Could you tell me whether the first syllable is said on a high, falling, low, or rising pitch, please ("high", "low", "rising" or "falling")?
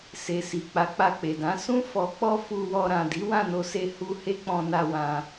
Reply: low